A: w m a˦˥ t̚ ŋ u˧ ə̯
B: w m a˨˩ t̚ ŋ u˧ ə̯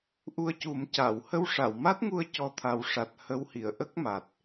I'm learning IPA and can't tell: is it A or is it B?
A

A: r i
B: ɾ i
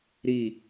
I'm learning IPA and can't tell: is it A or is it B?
B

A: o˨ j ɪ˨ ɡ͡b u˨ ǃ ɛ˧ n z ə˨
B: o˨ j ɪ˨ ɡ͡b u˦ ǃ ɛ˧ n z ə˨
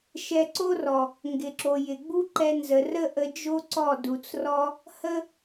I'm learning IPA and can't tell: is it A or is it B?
B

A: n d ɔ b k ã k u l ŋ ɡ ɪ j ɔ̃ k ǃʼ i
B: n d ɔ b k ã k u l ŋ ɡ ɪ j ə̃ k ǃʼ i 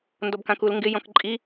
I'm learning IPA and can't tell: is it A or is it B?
A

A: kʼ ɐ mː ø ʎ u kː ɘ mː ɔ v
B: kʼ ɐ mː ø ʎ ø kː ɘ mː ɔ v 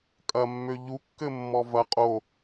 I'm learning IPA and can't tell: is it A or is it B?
A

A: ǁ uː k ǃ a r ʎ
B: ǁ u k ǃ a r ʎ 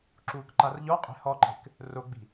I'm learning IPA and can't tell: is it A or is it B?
A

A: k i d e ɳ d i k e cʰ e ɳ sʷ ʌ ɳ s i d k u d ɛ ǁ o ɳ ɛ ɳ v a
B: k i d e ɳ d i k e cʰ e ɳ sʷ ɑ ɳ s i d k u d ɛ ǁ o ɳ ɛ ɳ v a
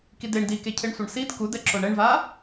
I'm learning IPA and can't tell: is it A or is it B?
A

